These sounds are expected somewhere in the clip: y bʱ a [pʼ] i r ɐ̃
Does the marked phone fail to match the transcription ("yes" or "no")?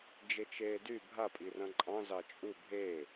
no